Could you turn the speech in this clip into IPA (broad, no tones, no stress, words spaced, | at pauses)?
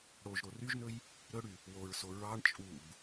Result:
ɽoʒ ɾoryʒnɵj | ɾɵɽy | woɹso ɹɑɳ t͡ʃʼub